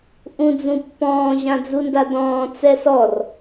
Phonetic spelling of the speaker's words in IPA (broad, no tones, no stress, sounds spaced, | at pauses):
ʔ ũ d͡z ũ pː ɔ̃ː ʑ ã d͡z u n d a d ɔ̃ː t͡s ɛ s ɔ r